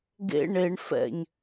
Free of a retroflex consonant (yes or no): no